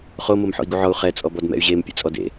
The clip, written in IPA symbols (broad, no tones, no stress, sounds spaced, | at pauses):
χ o m o m ħ ɔ̰ i̯ ɡ u ʕ ɔ u̯ χ ɛ t͡sʼ ɔ b ɔ d m ɛ̰ y̯ ʑ e m pʲ ḛ t͡sʼ ɔ d ḛ